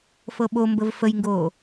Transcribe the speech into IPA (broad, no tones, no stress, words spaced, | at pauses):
fɤɓombəv fəjŋɡoː